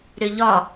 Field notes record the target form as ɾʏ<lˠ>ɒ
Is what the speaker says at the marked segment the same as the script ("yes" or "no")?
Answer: no